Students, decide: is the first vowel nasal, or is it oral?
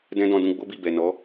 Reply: nasal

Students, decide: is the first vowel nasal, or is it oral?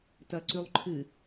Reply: oral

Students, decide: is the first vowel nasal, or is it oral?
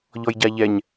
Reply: oral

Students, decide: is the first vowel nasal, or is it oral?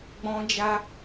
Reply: nasal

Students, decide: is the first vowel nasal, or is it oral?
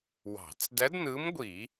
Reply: oral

